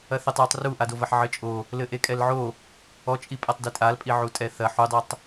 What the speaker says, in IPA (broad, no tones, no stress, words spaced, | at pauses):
ɐθɘtˤjotˤ ruʔadovɐħ ʕɘt͡ʃʼo | lɘʔekʼɛlʕo | ɔt͡ʃʼipʼatˤ ditʼalpʼi ʕutʼɛθɐ ħudˤotˤ